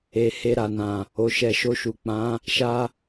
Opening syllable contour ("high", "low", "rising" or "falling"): low